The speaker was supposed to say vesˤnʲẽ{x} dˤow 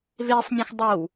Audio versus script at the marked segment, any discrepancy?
no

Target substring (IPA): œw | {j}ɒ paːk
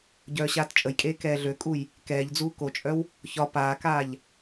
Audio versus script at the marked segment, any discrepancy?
yes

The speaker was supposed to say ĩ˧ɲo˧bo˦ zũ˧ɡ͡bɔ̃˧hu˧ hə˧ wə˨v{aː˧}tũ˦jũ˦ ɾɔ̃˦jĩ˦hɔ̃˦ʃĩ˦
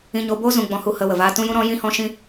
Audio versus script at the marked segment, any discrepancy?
no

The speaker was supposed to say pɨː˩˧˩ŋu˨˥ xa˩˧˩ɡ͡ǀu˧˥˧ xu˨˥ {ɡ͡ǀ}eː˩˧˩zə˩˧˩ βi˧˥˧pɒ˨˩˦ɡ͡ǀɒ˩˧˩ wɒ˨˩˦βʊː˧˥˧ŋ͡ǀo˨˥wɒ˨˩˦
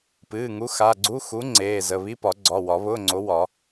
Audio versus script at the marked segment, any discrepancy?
yes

